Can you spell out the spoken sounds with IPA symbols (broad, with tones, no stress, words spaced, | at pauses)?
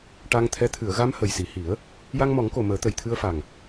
ʈa˧ŋt̪ʰɛ˧˥ t̪ʰɨ˨˩˨ə̯ ɣa˧m hə˨˩jsi˨˩hi˨˩˦ə̯ | ja˧ŋmɔ˨˩˦ŋko˨˩ məː˨˩˦t̪ə˨˩jt̪ʰɨ˧ə̯fa˨˩ŋ